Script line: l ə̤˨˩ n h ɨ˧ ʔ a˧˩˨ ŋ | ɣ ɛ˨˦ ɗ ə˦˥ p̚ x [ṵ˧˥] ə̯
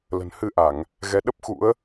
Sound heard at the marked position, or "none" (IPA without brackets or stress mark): ṵ˧˥